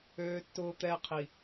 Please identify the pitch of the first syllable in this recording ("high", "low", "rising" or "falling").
low